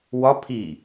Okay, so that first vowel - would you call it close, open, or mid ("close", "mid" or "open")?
open